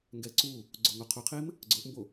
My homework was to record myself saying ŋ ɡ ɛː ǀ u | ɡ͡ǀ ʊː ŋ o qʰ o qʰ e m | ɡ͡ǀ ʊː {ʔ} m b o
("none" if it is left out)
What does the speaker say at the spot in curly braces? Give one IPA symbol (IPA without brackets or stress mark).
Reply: ʔ